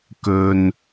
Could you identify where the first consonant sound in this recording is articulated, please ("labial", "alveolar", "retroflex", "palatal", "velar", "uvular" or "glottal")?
velar